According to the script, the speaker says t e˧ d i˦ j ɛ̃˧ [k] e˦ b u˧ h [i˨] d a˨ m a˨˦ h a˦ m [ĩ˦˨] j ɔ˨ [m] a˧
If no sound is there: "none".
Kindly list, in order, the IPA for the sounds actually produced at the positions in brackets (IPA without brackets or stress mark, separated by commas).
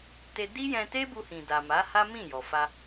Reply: t, ĩ˨, ĩ˦˨, f